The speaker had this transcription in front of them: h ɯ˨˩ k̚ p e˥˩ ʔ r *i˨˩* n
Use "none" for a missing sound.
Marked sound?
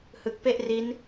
i˦˥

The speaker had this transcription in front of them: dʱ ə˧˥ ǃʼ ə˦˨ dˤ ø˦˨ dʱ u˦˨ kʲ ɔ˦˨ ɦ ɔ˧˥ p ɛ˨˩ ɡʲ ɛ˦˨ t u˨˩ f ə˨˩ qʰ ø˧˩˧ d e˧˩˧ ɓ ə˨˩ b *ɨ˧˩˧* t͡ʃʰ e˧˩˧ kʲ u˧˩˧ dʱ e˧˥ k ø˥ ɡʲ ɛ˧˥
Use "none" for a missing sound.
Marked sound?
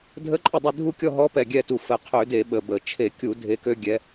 ə˧˩˧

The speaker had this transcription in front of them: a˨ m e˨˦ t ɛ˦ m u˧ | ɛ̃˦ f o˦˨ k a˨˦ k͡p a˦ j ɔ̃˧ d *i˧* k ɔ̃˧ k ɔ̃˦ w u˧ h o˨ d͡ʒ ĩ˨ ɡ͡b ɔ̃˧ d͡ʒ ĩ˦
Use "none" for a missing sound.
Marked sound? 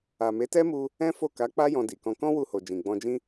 i˨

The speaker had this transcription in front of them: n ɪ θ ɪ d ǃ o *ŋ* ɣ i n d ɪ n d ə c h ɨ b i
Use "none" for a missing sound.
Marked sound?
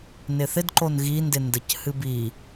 n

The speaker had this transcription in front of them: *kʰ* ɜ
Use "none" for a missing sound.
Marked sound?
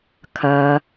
kʰ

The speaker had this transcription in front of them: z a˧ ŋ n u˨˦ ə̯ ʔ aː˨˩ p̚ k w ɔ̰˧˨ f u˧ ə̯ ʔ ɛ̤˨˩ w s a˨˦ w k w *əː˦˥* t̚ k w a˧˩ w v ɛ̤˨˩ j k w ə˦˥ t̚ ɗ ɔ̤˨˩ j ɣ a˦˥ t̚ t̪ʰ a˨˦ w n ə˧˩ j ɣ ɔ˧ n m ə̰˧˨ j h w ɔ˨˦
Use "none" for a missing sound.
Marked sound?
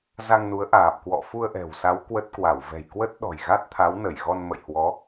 ə˦˥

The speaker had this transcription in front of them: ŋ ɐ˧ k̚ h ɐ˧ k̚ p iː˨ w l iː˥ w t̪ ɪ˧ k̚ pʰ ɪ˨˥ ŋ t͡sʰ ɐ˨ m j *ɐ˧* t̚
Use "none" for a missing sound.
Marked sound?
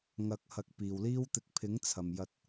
ɐ˧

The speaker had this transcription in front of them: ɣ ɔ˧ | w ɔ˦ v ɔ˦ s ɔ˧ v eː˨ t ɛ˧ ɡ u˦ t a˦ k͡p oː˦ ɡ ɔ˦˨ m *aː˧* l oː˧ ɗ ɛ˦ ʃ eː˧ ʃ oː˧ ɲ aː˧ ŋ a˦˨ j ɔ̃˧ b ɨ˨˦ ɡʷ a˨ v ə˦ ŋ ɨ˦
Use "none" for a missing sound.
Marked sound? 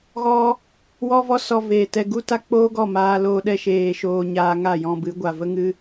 aː˧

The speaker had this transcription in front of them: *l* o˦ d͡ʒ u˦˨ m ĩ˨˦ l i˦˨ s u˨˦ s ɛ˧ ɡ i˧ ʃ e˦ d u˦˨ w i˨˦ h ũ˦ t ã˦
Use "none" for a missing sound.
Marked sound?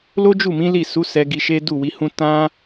l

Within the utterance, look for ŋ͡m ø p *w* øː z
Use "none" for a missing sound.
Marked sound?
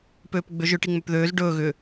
ð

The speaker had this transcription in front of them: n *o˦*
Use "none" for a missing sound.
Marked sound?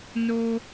o˦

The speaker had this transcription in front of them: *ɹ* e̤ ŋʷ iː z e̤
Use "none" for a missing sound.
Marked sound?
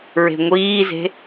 ɹ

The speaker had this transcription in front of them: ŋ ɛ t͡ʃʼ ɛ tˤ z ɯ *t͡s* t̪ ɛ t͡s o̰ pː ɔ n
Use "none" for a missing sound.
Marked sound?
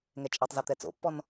none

